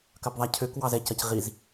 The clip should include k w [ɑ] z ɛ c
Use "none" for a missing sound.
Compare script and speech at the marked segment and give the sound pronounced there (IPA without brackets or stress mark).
ɑ